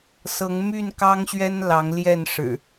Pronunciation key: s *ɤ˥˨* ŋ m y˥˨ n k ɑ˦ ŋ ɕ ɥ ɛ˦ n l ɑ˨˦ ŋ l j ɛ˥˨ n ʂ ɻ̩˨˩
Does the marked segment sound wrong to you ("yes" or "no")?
yes